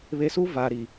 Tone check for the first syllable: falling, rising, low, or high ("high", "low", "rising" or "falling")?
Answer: low